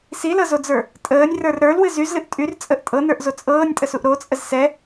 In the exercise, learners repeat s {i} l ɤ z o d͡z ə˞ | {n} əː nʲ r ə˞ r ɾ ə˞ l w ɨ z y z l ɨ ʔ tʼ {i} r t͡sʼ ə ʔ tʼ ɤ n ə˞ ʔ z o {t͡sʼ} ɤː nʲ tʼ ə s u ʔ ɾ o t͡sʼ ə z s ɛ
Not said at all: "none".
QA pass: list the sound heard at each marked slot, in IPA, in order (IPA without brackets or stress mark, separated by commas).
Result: i, tʼ, y, t͡sʼ